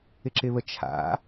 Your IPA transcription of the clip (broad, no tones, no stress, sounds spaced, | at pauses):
ɪ ǁ ɪ β ə t͡ʃʰ a̰